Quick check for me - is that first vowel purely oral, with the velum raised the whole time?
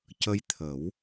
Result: yes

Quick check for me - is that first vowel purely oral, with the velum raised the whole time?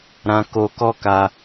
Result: no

